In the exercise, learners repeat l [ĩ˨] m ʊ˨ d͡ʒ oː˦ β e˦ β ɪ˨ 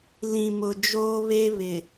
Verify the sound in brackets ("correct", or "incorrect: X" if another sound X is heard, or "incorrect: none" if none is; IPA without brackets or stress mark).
correct